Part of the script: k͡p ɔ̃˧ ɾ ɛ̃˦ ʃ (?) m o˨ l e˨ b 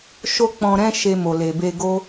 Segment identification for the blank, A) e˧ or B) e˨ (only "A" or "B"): A